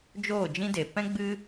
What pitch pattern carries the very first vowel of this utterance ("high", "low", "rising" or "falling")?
falling